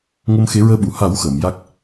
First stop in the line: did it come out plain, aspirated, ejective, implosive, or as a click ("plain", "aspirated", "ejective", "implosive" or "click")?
implosive